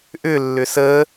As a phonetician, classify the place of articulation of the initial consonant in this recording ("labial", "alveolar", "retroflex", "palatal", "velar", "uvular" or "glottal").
glottal